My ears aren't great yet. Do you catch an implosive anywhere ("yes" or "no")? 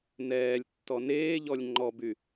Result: no